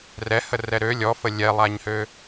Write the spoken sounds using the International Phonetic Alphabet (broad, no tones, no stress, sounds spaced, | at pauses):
r ɛ h ə r ɛ ɾ ø lʲ ɔ f ə lʲ ɛ lˠ a ɲ h ø